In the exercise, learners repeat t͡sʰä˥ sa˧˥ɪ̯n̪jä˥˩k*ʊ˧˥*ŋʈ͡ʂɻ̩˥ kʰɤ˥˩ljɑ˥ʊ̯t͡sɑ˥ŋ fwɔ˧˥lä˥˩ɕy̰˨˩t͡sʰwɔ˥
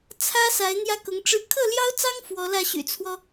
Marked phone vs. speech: correct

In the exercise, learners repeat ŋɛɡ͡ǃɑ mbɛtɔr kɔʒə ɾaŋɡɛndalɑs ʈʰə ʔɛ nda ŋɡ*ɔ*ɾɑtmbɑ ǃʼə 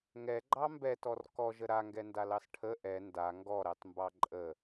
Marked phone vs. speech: correct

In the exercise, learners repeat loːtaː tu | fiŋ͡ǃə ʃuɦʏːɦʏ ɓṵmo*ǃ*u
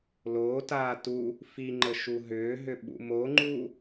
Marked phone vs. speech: incorrect: ŋ͡ǃ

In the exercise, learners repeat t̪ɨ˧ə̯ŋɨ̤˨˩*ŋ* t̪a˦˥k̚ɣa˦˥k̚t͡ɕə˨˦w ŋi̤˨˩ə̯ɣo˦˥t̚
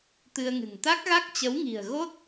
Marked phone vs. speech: correct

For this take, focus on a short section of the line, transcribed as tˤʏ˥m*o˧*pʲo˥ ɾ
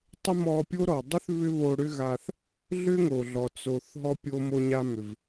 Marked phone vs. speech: incorrect: ɔ˧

